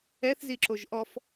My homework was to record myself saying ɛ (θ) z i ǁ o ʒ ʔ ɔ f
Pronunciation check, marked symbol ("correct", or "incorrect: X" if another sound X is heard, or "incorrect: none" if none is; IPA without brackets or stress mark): correct